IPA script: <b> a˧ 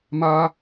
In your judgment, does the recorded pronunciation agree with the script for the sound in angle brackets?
no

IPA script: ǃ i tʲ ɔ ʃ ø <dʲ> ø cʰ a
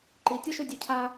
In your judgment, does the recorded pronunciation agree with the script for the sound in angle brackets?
yes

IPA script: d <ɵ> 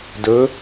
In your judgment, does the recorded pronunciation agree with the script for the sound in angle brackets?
yes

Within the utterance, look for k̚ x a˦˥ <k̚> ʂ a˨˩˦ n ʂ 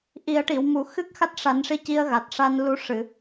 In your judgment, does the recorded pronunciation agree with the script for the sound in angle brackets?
no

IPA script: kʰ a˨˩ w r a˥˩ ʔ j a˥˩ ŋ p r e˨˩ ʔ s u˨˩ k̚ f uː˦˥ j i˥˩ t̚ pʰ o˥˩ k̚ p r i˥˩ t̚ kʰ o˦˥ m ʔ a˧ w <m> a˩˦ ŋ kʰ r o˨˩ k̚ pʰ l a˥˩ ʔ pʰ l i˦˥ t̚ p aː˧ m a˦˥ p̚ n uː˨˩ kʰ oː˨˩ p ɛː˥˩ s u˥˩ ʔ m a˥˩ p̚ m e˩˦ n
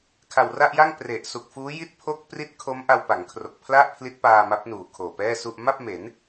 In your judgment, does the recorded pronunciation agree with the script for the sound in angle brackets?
no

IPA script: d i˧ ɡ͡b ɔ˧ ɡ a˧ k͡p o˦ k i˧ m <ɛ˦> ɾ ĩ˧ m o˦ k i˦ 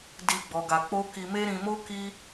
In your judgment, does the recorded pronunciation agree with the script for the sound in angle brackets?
no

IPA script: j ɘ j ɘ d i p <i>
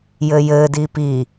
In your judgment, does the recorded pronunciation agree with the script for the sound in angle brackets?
yes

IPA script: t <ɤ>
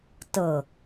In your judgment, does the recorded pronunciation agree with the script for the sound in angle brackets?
yes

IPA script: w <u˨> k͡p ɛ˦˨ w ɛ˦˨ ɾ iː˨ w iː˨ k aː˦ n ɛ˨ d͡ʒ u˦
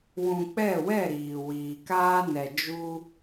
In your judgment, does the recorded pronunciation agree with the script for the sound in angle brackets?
no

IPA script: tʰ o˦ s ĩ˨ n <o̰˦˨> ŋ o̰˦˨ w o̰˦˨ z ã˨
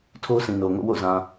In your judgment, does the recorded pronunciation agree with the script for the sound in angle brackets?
no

